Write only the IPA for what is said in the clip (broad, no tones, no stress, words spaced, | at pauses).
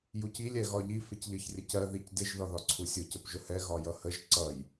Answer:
jucilʲ ɛɣɒʎi fɪcʎʌçrʲəcɜ ðicdɪʒ ðɒðɒǀʰusʲʊ cəpʒʊhɛ ɣɒjʌhəʒ ǀʌj